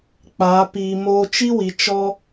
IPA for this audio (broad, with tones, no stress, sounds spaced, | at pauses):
k͡p aː˨˦ p iː˧ m oː˦ t͡ʃ i˦ w i˨ t͡ʃ ɔ˦